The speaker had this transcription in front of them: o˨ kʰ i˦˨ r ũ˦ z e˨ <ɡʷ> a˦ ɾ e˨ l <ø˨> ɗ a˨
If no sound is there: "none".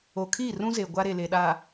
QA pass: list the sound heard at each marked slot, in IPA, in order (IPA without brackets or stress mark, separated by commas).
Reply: ɡʷ, e˨